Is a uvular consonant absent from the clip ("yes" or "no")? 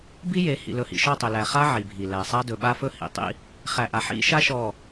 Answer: no